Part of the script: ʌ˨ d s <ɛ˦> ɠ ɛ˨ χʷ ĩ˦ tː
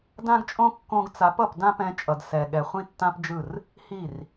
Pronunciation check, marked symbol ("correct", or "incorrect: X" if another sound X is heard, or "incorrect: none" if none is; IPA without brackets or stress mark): incorrect: ɛ˨